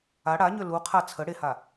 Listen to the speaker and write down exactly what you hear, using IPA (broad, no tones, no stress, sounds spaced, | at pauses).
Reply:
a ɽ a ɲ ø l u qʰ a t͡sʰ ə ɽ e h a